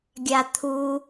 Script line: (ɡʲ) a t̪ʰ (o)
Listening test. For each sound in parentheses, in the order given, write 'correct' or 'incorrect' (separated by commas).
correct, incorrect